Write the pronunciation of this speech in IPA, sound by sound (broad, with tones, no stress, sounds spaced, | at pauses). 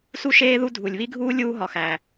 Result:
s u˥ ʃ eː˥ ð u˥ dʱ u˩ lʲ β i˥ ɡʱ uː˥ lʲ uː˥ ɦ ɒ˩ x æ˩